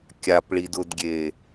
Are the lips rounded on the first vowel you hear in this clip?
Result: no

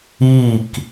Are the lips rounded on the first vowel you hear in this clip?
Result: no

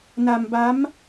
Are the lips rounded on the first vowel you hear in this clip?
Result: no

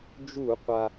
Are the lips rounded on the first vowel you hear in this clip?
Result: yes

